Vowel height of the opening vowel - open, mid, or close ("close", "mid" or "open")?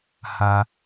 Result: open